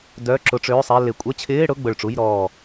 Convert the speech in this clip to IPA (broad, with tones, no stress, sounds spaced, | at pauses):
d œ˧˥˧ ǁ ʊ˧˥˧ ʈ͡ʂ øː˧˥˧ sˤ ɛ˧˥˧ l ɪ˧˩ kʷʼ ə˧˥˧ t͡ɕʰ ɪː˧˥˧ ɽ ʊ˧˥˧ ɡ͡b ʊ˧˩ ɭ ʈ͡ʂ u˧˥˧ j ɾ ɔː˧˩